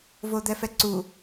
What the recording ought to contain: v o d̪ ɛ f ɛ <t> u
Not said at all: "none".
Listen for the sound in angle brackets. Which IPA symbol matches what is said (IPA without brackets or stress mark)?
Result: ǀ